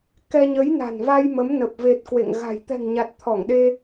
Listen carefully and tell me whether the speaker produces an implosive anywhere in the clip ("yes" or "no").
yes